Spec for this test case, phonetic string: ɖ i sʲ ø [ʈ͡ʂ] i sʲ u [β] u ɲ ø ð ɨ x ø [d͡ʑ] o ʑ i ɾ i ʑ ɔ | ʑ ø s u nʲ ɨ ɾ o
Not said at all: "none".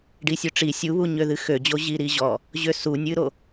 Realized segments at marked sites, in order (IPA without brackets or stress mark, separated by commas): ʈ͡ʂ, β, d͡ʑ